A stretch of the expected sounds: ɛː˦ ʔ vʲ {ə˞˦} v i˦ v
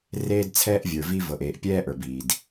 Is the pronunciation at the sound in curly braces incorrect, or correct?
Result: incorrect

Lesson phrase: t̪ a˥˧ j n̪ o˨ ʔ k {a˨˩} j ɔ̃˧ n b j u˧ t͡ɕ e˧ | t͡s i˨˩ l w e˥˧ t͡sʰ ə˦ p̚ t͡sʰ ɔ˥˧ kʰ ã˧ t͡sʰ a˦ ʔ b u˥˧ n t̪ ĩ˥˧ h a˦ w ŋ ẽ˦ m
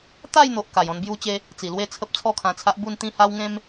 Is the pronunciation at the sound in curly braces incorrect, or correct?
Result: correct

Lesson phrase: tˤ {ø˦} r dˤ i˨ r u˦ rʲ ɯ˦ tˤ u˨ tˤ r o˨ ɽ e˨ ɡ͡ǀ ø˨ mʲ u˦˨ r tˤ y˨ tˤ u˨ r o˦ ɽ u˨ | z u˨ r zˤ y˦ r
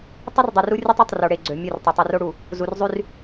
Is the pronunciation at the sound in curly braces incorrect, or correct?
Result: incorrect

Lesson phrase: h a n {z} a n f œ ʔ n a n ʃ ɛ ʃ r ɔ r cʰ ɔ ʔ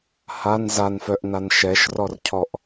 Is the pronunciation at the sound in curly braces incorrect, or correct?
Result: correct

